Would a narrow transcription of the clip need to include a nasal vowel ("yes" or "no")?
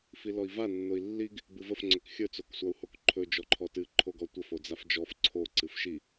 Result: no